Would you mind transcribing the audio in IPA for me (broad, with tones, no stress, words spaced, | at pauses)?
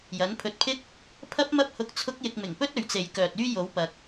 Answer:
jɐ˨˥npʰɵ˧t̚pʰɪ˥k̚ | pʰɐ˥p̚mɐ˥p̚hʊ˧k̚ t͡sʰʊ˥k̚jɪ˧k̚ mɪ˨˩ŋpɵ˥t̚ɵ˨ɥt͡se˨j kœː˨t̚yː˥jo˨˥w pɐ˨k̚